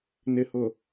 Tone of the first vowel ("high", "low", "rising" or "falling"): low